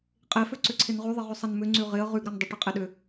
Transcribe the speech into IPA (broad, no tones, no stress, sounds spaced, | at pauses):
qʼ e f ø ǀ ʏ ǀʰ ɪ n ʁ y ðˤ ɪ ʁ ʏ sˤ ɐ n m ʏ ŋ͡ǀ y ʁ ɪ ə̯ ʁ y ɡ ɾ ɐ n dˤ ɪ ʈ e qʼ e ɗ ʏ